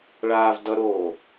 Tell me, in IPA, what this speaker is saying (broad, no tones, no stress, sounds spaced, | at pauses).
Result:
ɭ aː v d ʌ ɾ oː